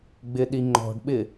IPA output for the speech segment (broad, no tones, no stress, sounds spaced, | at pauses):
ɡ͡b ɪ ɗ i ŋ͡ǃ ɔ̤ ɖ ɓ ɪ